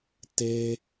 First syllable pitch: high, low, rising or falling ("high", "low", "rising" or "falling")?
high